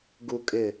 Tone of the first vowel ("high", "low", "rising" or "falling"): low